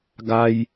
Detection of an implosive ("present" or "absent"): absent